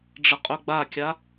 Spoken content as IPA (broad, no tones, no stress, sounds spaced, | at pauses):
ɖ͡ʐ ə qʼ ɵ ɡ͡b a kʲ a